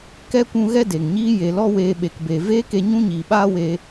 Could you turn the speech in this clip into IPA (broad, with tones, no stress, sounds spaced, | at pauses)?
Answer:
k ɛ˦ kʷ ũ˧ ɣ ɛ˧ d e˨ ŋ ɲ iː˦ j e˨ l ɔ˧ w eː˧ ɓ e˨ k b e˨ v eː˦ k e˧ ɲ ũ˦ ɲ iː˨ ɓ aː˦ w e˧